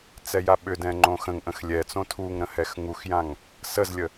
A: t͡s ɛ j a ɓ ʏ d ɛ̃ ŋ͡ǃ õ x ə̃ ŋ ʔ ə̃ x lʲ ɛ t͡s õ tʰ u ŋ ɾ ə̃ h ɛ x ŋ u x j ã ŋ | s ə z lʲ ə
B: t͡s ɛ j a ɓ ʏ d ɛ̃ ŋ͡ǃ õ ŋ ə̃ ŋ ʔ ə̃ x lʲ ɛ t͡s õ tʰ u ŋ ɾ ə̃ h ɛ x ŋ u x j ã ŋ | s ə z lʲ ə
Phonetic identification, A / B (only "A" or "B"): A